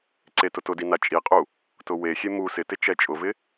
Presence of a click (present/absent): present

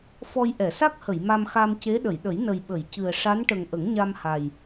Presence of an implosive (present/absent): present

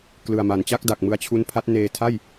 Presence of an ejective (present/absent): absent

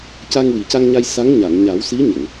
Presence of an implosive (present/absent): absent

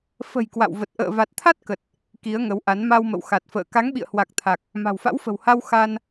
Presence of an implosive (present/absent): present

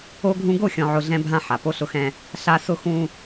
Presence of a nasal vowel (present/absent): present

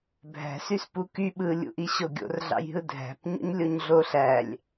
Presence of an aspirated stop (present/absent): absent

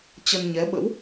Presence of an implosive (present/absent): present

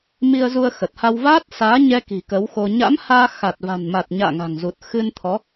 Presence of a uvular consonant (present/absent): absent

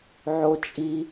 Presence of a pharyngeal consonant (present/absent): present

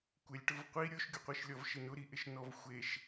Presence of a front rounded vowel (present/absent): absent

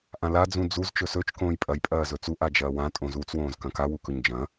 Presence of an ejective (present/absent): present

